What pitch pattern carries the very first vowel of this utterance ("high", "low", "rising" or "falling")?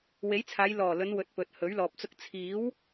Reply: rising